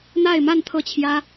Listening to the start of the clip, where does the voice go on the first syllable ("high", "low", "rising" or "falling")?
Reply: falling